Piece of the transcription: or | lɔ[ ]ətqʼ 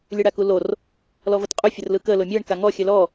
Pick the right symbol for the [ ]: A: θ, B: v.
B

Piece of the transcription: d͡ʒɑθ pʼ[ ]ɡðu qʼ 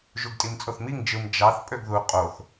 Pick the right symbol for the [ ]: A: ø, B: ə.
A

